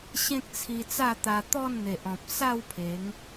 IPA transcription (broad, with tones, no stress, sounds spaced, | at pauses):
ɕ ẽ˦ k̚ t͡sʰ i˧ t͡s a˥˧ t̪ a˧ t̪ ɔ˥˧ n n̪ e˨ ʔ ɔ̃˨ p̚ s a˥˧ w pʰ e˨˦ ŋ